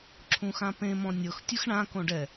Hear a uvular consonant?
no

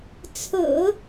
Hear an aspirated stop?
yes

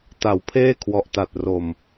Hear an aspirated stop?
yes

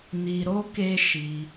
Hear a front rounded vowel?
no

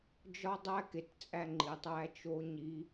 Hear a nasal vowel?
no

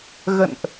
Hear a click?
no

